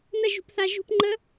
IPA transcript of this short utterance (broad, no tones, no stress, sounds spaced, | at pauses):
n ə ʒ ṳ p θ a ʒ ṳ p ŋ͡ǃ ə